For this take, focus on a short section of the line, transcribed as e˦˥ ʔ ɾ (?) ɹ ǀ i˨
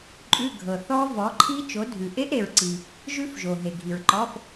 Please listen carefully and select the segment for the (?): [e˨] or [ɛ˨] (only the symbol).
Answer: e˨